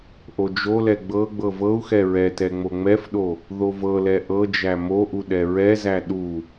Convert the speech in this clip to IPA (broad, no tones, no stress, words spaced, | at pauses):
ʔod͡ʒolɛ ɡ͡bɤ ɡ͡bɤvɤu̯xɛ ɹɛtɛ ŋ͡moŋ͡mɛfɗo | ðovɤlɛ ʔɤd͡ʒæ moʔu ɗɛɹɛzæ ɗu